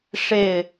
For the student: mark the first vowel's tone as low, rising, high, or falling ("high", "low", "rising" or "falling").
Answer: falling